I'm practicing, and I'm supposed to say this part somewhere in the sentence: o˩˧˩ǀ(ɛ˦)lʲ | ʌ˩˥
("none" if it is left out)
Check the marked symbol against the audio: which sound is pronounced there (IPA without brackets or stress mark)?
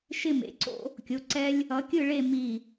ɛ˦